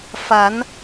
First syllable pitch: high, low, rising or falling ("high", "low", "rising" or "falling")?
rising